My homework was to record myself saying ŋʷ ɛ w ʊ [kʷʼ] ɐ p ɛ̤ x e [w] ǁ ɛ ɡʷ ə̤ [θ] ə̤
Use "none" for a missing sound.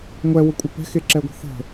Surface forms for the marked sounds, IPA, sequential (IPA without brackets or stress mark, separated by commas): kʷʼ, none, θ